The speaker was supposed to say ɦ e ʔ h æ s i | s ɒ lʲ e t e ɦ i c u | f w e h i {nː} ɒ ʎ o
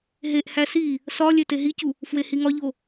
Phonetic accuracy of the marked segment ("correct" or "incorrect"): incorrect